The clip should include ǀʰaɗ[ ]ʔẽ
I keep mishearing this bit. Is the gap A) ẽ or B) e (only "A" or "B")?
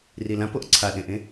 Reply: A